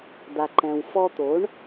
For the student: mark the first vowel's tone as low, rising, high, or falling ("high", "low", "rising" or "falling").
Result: low